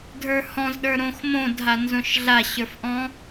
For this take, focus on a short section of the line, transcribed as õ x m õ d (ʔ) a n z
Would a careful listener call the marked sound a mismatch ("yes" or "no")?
yes